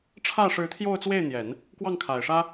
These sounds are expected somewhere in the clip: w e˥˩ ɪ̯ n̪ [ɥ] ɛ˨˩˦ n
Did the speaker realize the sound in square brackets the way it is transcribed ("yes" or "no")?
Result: no